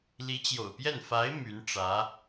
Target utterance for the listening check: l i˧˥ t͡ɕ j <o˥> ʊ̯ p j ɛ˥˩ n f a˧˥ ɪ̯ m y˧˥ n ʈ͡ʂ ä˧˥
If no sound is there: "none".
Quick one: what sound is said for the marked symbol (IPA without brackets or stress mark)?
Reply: o̰˨˩